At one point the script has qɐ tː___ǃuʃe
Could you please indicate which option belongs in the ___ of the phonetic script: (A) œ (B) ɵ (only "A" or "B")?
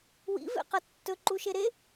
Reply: B